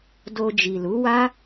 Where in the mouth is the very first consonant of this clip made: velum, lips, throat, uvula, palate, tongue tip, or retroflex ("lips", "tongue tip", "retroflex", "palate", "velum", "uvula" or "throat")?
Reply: tongue tip